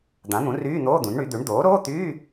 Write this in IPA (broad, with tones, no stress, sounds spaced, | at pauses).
d̪ ã˩˥ n̪ ũ˩˥ r yː˧˥˧ n̪ oː˧˥˧ d̪ ũ˩˥ n ɳ y˩˥ d̪ ʉ˩˥ ɳ d̪ oː˩˥ ɾ oː˧˥˧ t̪ yː˧˥˧